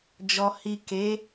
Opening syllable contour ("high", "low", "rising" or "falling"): low